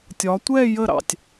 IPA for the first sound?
tʲ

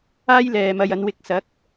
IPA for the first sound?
aː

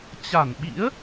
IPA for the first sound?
t͡ɕ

